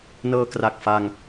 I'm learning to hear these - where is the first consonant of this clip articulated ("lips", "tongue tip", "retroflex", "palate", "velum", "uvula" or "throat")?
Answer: tongue tip